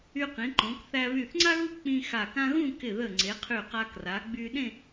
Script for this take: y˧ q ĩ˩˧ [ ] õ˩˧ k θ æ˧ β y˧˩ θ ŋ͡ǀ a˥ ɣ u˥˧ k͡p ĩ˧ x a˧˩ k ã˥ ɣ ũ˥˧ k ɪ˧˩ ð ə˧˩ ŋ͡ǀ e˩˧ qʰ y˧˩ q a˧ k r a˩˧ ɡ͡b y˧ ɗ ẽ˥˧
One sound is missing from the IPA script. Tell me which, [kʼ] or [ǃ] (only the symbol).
ǃ